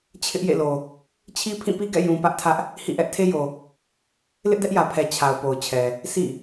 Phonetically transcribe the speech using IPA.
t͡ɕʰ ɪ˦ ʔ j ḛ˦˨ l o˨ | t͡ɕʰ i˦ pʰ ĩ˦˨ p i˦ ɡ ɛ̰˦˨ j ũ˨ p ä˦ ʔ tʰ ä˦ ʔ | h ḭ˦˨ ʔ ɛ˦ ʔ tʰ e˦ j o˨ | l ɪ˦ ʔ d ɛ˦ ʔ j ä˨ pʰ ɛ˨ t͡ɕʰ a˨ ʊ̯ p o˨ ʊ̯ t͡ɕʰ ɛ˨ | s ḭ˦˨

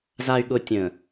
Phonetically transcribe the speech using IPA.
z a˨ y̯ ɠ ʊ˨ tʲ ə̃ː˨

